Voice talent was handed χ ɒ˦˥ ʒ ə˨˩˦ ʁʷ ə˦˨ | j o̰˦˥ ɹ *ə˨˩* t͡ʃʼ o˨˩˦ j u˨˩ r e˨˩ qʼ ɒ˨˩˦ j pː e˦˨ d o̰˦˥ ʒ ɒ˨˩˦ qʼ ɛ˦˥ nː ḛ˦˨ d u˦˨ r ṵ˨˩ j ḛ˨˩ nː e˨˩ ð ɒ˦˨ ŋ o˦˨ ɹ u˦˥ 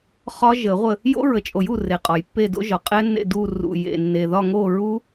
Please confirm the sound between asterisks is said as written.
yes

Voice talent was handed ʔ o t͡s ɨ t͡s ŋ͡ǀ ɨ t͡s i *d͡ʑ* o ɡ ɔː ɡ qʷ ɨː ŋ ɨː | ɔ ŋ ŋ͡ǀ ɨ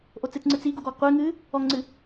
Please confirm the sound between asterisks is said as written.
no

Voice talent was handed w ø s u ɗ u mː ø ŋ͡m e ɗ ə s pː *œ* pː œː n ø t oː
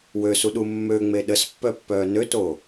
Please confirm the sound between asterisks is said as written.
yes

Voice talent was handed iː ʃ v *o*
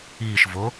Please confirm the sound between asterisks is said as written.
yes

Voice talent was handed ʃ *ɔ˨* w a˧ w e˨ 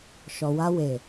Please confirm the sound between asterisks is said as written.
yes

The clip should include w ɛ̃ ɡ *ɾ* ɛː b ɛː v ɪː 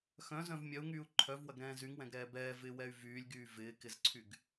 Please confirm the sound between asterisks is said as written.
yes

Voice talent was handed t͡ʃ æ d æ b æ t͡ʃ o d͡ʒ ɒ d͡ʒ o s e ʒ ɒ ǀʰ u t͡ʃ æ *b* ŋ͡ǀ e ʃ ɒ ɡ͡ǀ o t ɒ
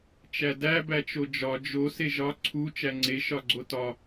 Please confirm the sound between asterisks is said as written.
no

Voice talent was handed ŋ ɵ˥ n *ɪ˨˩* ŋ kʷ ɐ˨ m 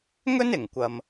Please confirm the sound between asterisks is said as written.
yes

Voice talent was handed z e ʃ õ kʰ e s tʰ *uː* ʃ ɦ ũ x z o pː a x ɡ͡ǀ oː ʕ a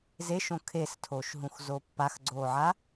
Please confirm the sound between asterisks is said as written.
no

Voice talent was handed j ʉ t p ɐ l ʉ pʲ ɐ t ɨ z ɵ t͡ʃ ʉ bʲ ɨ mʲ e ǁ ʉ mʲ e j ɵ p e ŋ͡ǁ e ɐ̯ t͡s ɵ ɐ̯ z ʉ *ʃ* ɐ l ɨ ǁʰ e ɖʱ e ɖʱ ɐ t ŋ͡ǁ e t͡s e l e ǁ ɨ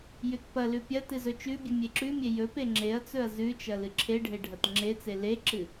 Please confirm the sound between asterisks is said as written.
no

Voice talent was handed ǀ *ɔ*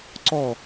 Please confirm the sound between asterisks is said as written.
yes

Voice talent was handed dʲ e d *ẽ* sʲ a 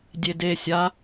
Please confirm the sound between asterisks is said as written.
no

